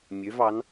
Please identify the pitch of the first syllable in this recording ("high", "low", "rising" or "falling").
rising